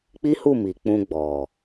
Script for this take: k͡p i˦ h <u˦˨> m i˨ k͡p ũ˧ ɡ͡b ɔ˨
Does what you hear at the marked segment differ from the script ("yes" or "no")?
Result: no